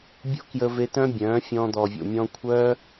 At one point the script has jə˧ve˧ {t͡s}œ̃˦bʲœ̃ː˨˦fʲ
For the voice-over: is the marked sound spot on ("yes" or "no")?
no